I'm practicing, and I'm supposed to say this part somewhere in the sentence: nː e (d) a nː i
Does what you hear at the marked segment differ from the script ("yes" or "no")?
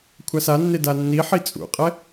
no